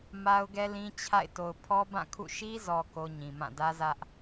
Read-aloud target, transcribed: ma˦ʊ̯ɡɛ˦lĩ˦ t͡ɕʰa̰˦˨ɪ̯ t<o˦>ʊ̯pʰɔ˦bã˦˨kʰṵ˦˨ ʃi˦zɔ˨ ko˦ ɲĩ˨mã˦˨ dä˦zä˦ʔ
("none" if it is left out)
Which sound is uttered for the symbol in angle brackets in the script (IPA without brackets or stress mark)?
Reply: o˨